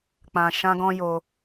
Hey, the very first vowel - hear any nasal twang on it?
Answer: yes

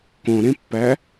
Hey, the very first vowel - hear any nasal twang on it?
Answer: yes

